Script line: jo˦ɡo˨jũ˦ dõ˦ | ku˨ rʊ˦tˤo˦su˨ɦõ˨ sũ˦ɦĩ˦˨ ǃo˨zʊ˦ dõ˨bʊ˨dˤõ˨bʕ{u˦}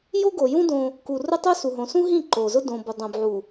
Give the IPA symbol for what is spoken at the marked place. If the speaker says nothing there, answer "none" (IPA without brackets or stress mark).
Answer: u˨